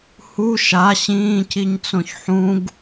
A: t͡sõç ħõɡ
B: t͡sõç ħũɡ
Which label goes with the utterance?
B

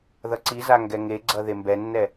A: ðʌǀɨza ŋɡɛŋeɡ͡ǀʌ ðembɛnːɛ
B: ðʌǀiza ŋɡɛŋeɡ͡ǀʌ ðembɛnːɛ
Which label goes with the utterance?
B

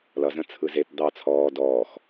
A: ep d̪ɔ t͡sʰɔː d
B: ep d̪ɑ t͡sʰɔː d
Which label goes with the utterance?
B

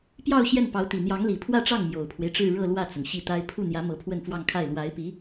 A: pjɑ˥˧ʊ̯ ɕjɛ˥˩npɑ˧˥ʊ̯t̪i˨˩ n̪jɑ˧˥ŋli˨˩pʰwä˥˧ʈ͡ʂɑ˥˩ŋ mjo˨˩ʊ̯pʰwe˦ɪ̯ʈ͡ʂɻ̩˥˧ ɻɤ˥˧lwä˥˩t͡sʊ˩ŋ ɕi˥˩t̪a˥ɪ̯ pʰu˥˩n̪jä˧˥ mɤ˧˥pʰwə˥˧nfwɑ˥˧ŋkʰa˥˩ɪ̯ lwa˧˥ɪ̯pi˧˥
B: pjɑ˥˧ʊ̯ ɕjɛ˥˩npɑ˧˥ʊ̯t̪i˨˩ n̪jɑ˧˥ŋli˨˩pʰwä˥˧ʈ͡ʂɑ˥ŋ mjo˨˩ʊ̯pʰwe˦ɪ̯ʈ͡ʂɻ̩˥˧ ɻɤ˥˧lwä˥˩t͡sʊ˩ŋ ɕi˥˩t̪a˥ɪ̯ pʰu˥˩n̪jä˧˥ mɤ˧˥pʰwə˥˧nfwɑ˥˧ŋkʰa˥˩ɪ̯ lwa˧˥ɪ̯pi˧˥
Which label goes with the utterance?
A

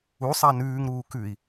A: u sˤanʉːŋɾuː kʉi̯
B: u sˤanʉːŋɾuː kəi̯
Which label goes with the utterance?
A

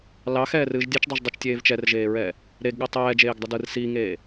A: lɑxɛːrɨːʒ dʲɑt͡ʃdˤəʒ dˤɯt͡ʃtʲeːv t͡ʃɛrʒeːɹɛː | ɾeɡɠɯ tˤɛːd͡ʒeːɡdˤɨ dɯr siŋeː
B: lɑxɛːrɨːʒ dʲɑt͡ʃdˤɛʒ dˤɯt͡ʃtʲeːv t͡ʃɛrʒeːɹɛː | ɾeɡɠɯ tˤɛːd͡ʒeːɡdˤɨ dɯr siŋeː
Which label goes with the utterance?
B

